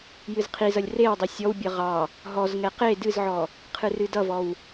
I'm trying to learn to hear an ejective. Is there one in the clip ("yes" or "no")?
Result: no